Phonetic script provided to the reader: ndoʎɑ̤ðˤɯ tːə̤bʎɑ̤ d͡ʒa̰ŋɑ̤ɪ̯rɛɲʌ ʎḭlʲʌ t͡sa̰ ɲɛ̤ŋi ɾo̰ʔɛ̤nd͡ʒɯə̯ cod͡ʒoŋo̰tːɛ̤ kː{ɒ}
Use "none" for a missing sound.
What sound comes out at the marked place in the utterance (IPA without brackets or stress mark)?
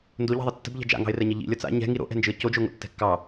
ɑ